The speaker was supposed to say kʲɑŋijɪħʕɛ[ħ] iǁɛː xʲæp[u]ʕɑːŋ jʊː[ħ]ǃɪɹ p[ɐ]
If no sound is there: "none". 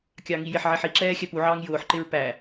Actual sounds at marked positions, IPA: ħ, u, ħ, æ

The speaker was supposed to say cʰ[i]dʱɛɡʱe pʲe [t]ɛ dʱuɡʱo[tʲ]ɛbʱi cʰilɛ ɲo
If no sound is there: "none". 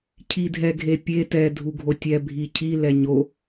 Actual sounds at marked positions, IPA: i, t, tʲ

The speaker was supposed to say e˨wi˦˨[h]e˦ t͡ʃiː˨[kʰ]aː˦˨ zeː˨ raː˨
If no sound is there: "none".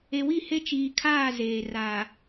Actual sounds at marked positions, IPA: h, kʰ

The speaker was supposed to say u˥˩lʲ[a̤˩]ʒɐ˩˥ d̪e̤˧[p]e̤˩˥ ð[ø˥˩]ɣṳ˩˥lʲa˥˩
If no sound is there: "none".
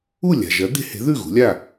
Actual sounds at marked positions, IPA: a̤˩, h, ʉ˥˩

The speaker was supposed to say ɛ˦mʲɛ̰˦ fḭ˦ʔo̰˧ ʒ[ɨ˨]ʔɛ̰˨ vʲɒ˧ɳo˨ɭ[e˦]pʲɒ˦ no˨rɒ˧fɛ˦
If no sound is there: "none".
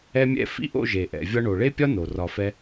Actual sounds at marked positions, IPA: e˨, e˦

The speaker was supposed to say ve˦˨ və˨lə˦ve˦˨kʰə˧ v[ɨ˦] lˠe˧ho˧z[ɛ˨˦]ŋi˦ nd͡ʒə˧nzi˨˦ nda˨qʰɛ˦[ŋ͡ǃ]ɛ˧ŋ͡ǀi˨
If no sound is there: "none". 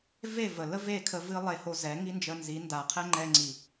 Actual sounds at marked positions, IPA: ɨ˦, ɛ˨˦, ŋ͡ǃ

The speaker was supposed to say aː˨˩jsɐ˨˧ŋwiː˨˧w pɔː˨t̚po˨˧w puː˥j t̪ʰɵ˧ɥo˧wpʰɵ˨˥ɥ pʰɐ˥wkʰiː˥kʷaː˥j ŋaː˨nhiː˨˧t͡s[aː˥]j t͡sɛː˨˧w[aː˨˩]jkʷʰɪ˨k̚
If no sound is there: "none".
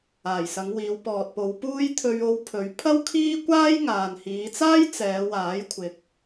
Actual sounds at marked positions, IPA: aː˥, aː˨˥

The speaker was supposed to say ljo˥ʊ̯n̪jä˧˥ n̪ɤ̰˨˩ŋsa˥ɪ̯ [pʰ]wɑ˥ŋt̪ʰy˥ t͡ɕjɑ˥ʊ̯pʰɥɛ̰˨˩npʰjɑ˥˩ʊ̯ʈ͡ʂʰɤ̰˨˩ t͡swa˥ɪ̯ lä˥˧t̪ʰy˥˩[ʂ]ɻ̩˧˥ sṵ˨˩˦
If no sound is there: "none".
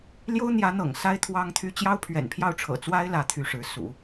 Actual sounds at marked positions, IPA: t̪ʰ, ʂ

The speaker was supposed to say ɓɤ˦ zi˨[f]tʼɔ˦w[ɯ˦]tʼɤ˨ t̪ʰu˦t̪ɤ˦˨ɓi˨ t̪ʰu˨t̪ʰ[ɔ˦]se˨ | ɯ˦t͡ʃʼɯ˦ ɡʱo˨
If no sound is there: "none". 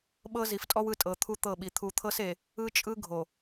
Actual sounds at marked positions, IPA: f, ɯ˦˨, ɤ˦

